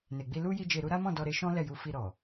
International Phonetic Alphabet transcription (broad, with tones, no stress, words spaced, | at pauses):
ne˨ɡ͡bi˧lu˦ ji˦d͡ʒe˧ɾu˦ ɾa˦mɔ̃˦˨ dɔ˧ɾe˧ʃɔ̃˦ lɛ˦˨ju˧ fi˧ɾɔ˨